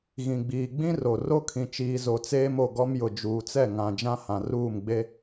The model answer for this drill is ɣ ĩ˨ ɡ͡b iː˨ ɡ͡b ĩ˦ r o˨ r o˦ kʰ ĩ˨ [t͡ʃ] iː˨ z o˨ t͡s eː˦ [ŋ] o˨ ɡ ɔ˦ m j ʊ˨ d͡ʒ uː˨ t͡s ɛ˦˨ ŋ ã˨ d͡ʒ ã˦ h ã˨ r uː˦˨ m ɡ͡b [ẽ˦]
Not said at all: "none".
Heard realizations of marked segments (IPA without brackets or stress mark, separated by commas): t͡ʃ, m, e˦